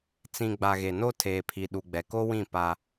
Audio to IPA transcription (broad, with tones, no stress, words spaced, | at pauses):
t͡sĩ˨ ɡ͡ba˨ɣe˨no˦ tʰeː˨pʰi˨ ɗu˨ɡ͡bɛ˨ko˦wĩ˦˨ pa˦